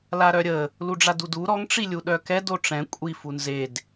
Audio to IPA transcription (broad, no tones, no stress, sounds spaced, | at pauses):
l a ɾ œ ɾʲ ə | l u ɖ͡ʐ a d u d u ɾ ɔ ŋ ʈ͡ʂ i lʲ u ɗ œ k ɛ d o ʈ͡ʂ ɛ̃ kʷʼ i f u n z e d